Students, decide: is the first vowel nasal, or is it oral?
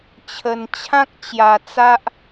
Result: oral